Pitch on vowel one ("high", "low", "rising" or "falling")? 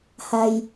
low